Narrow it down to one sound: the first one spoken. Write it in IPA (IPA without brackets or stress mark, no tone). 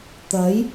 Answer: t̪